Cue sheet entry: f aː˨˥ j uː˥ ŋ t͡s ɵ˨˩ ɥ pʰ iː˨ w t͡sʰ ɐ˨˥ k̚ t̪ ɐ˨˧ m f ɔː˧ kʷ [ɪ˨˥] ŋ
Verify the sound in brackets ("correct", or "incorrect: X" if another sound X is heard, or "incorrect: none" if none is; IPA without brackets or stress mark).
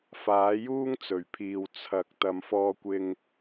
incorrect: ɪ˧